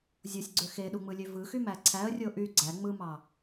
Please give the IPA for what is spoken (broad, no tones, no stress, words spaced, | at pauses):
zʲosʲɡ͡ǀø xeɗuŋ͡mɯlʲø vɯxymæ ǀʰæə̯rʲo ʔy ɡ͡ǀæ ŋ͡mɯmɑ